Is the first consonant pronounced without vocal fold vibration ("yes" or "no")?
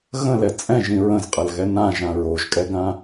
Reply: no